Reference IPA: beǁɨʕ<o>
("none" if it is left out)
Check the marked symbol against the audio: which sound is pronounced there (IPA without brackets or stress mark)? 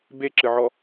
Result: ɔ